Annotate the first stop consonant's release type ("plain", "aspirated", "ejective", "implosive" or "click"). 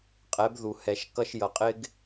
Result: ejective